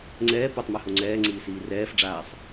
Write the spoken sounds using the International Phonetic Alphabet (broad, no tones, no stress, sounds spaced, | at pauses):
ŋ͡ǀ ɛː p o tˤ m a h o ŋ͡ǀ ɛː ŋ͡ǀ iː s iː r ɛː f ɖ͡ʐ aː sˤ